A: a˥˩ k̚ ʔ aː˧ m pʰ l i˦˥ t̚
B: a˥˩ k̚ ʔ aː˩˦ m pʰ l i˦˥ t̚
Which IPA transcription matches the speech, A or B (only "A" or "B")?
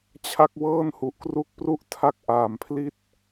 B